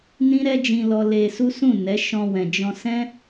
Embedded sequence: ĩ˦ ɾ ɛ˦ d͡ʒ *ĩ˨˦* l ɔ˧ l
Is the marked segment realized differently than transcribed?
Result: yes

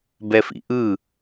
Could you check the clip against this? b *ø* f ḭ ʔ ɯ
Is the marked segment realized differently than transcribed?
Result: yes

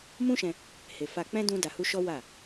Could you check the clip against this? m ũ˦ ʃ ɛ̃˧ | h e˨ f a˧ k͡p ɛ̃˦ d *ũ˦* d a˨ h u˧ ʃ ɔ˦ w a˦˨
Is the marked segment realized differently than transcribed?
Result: yes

